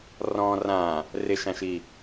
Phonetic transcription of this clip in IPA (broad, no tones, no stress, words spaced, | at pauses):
rɔ̃ rã | rɪʃãʃi